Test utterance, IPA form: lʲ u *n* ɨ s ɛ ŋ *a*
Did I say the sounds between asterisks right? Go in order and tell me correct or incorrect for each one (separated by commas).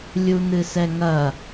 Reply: correct, incorrect